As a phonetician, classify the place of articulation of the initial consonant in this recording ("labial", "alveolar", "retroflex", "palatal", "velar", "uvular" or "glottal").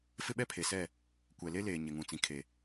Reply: labial